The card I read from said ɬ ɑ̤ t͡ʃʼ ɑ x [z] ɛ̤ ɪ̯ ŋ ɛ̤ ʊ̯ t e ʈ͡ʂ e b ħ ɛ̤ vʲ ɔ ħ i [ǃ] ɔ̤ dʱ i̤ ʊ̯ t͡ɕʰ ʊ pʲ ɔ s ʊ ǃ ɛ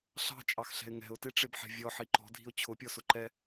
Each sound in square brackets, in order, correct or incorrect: incorrect: ɬ, correct

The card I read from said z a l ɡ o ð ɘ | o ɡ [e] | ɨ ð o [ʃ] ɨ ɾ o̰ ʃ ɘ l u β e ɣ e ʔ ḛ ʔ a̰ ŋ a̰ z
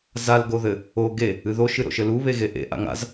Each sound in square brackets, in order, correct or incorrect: correct, correct

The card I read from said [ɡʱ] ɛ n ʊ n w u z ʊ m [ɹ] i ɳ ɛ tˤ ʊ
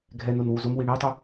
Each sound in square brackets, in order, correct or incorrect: correct, incorrect: w

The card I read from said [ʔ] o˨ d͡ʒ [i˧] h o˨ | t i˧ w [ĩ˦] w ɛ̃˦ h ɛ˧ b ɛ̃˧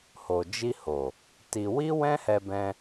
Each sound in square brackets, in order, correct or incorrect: incorrect: h, correct, incorrect: i˦

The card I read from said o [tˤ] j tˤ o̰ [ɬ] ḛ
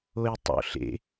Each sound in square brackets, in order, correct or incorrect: incorrect: none, correct

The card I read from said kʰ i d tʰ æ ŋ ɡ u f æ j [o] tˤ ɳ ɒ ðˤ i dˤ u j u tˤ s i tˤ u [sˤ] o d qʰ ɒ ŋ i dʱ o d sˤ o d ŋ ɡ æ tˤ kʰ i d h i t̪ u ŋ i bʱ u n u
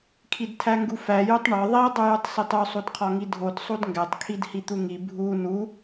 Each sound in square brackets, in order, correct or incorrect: incorrect: u, correct

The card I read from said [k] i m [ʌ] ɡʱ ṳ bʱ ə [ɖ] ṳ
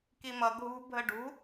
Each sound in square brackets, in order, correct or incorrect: correct, correct, correct

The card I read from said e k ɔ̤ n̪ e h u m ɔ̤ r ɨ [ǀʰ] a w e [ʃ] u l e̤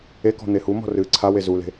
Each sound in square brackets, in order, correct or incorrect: correct, incorrect: z

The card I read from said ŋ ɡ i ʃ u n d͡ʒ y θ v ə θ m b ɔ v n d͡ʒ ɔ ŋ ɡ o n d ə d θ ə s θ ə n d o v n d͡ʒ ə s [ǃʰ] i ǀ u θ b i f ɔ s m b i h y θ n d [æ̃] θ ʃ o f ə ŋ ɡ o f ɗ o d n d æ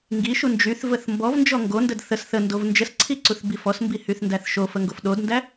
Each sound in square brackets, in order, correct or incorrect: incorrect: ǀʰ, incorrect: æ

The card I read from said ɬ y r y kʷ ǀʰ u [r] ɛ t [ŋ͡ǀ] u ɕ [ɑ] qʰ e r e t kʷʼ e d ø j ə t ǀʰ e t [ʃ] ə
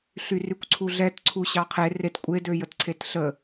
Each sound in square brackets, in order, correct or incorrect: incorrect: ɮ, incorrect: ǀʰ, correct, incorrect: ɬ

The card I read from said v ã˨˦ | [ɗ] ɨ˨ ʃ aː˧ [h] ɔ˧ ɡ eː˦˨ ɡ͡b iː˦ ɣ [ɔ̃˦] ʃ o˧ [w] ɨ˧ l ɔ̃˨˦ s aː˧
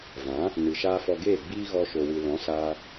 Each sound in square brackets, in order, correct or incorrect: incorrect: n, incorrect: f, incorrect: ɔ˦, correct

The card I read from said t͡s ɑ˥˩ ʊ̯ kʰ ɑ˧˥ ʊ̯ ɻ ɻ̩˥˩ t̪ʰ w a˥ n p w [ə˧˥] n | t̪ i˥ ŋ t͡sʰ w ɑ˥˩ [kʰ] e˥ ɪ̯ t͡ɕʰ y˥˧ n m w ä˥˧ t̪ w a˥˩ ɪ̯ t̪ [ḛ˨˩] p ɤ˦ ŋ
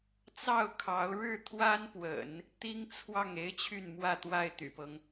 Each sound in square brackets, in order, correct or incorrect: incorrect: ə̰˨˩˦, incorrect: ŋ, incorrect: y̰˨˩

